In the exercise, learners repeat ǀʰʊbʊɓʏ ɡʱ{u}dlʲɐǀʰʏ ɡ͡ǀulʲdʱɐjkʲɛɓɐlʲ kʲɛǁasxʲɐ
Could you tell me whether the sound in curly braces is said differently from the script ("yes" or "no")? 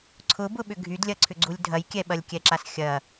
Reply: yes